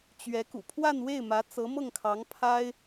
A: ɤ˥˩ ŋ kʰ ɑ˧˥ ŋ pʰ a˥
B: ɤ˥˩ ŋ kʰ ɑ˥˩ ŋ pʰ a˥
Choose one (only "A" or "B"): A